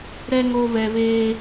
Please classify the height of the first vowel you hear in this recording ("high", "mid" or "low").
mid